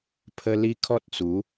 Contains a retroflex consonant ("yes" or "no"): no